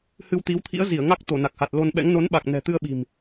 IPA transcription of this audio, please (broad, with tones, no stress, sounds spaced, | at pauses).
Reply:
h ɨ˧ w t̪ i˨˦ w t̪ʰ ḭ˧˥ ə̯ z i˧˩ ə̯ ŋ a˦˥ k̚ t̪ o˧˩ n a˨˩ k̚ h a˨˩ t̚ l o˧ n ɓ ɛ̰˧˥ ŋ n o˨˦ n ɓ a˨˩ k̚ n ɛ̤˨˩ t̪ ɨ˧ ə̯ ɓ i̤˨˩ m